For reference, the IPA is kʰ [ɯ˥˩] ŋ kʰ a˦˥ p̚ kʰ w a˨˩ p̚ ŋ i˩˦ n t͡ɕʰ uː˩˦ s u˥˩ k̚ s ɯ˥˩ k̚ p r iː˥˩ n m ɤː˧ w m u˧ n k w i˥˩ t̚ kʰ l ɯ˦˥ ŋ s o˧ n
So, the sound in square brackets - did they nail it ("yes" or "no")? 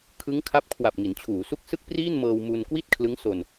no